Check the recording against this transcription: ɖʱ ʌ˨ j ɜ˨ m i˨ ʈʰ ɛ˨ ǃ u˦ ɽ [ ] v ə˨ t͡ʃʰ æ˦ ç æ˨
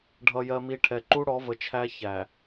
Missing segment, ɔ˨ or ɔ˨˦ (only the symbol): ɔ˨˦